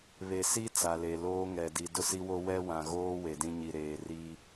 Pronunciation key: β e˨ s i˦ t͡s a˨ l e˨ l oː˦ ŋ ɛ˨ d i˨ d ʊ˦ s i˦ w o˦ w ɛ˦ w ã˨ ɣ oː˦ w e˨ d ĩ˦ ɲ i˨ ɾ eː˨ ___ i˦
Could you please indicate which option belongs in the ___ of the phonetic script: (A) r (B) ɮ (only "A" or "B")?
A